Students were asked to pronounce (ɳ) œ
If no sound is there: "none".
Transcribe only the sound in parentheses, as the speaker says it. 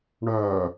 ɳ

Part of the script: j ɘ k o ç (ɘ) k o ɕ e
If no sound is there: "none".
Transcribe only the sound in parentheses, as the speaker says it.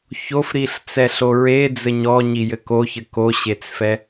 ɘ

